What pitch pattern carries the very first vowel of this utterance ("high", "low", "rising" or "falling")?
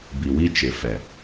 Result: low